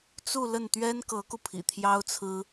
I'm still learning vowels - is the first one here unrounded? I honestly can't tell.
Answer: no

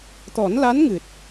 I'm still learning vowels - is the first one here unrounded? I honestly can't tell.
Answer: no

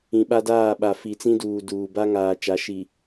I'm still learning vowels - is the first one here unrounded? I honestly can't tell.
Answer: yes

